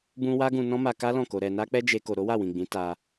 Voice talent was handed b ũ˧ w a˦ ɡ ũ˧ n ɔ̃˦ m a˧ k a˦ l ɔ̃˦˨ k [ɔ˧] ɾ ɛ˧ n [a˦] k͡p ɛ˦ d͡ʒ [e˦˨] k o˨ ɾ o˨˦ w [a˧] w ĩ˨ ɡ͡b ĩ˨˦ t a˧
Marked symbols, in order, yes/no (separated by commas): no, yes, no, no